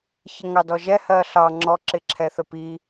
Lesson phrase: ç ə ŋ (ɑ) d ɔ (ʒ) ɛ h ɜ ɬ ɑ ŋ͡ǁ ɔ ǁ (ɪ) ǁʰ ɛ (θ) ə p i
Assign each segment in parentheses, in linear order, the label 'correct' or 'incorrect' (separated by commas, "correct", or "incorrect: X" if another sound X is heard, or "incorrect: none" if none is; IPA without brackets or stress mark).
correct, correct, correct, correct